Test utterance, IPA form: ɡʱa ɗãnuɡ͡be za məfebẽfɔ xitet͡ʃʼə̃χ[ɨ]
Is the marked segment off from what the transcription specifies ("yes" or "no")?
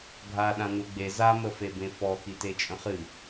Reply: no